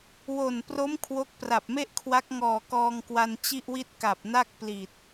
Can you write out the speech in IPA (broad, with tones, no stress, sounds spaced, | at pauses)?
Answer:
w o˨˩ n p r o˦˥ m kʰ w o˦˥ k̚ p r a˨˩ p̚ m e˥˩ ʔ kʰ w a˦˥ k̚ ŋ ɔː˨˩ k ɔː˧ ŋ k w a˧ n t͡ɕ i˥˩ ʔ w i˥˩ t̚ k a˨˩ p̚ n a˥˩ k̚ p l i˨˩ t̚